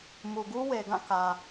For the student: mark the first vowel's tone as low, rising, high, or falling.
low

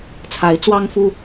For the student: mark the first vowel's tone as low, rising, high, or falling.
rising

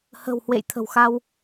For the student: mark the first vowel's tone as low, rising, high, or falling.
low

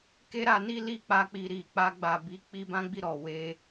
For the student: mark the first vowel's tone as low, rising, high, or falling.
high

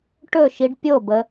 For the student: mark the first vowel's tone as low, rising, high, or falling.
falling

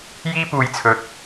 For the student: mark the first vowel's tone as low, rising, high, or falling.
high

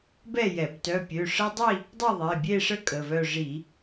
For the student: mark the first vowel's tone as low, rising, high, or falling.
falling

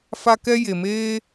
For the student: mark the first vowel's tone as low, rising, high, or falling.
high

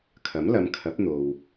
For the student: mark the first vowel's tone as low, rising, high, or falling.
rising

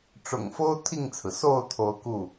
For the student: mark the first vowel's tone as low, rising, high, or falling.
low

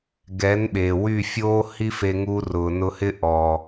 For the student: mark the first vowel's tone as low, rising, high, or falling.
rising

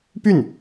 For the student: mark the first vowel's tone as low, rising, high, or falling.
falling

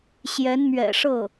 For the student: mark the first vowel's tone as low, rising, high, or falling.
rising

